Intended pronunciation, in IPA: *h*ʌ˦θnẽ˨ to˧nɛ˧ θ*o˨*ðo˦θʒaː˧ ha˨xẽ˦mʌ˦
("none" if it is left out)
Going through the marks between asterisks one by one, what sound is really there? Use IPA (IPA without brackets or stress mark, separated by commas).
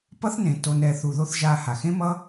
p, u˨